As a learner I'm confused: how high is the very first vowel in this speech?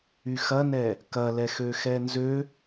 high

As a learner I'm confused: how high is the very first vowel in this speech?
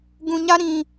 high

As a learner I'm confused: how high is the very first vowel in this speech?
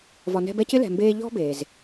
low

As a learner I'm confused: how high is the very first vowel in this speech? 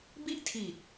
high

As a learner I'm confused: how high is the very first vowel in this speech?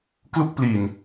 high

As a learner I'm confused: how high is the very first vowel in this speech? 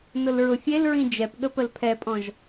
high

